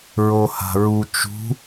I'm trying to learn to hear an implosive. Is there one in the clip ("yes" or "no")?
no